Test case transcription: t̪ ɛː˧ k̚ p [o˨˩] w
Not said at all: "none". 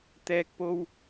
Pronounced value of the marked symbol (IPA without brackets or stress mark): o˥